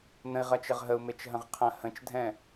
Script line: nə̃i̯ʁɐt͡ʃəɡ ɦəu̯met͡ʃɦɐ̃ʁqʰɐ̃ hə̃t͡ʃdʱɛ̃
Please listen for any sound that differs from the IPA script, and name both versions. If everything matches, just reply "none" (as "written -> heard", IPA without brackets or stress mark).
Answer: ɡ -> ʁ